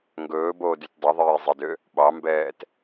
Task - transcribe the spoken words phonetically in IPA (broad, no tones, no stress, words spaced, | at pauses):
ŋɡɵːboːdyt dˤiðˤiːzˤidø | ɓɑmbɛːt